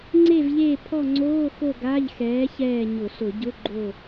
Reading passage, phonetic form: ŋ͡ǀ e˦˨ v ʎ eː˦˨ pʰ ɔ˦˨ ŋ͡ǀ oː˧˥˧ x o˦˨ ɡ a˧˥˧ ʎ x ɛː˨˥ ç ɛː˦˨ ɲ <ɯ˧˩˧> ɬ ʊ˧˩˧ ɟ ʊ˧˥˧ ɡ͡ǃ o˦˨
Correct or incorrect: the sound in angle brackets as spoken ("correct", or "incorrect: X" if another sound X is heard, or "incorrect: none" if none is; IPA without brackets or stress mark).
incorrect: ʊ˧˩˧